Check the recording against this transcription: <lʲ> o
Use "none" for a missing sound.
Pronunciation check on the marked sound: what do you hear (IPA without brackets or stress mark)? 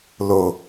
l